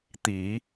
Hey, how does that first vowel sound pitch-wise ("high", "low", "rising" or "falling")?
low